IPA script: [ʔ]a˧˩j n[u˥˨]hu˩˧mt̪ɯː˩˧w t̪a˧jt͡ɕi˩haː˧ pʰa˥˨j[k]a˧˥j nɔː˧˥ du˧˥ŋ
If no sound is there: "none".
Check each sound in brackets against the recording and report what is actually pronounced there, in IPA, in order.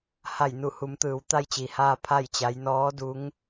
h, u˧˩, t͡ɕ

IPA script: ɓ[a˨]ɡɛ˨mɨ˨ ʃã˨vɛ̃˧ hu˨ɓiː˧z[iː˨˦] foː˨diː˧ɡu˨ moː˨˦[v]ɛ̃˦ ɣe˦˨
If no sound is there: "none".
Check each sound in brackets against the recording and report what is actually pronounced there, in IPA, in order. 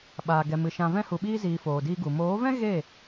aː˨, iː˨, v

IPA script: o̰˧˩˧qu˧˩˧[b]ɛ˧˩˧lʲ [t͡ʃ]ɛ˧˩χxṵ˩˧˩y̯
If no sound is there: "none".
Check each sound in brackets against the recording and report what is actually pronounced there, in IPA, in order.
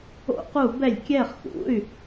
b, kʲ

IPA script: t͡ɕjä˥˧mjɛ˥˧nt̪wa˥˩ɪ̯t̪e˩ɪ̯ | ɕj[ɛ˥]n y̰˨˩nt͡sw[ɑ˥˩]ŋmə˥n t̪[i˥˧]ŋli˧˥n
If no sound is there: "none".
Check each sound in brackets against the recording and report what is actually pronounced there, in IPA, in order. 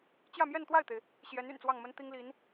ɛ˧˥, ɑ˥˩, i˥

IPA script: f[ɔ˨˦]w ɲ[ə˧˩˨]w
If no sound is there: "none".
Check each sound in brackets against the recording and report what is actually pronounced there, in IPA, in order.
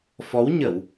ɔ˨˦, ə˧˩˨

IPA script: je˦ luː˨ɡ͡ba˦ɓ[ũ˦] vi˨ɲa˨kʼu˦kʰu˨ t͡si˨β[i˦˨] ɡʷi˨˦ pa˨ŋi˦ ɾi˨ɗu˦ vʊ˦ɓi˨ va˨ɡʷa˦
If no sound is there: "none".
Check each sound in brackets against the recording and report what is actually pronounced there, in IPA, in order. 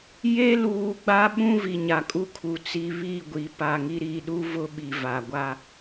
ũ˦, i˦˨

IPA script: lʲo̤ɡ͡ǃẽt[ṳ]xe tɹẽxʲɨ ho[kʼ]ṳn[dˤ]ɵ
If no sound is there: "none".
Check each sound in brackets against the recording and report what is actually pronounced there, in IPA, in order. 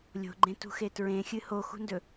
ṳ, x, d

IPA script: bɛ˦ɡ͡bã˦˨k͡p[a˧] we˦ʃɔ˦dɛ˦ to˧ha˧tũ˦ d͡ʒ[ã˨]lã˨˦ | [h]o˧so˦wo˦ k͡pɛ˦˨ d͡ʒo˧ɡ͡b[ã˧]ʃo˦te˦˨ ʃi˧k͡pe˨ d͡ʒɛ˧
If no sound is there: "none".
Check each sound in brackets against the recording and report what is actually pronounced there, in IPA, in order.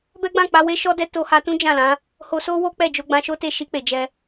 a˧, ã˦˨, h, ã˧

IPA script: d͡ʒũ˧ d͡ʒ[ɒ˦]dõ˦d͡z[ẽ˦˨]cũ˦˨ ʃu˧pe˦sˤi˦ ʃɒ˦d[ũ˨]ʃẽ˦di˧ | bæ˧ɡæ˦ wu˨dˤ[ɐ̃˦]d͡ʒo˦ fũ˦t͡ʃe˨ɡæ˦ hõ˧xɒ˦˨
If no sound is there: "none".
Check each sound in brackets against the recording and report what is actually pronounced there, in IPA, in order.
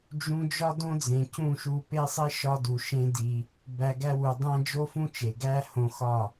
ɒ˦, ẽ˨, u˨, æ̃˦

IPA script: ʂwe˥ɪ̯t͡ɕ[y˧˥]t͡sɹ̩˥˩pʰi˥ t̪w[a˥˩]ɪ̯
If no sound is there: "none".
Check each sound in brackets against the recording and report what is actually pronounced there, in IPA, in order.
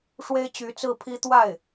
y˧˥, a˥˩

